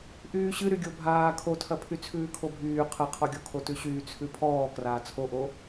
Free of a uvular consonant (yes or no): no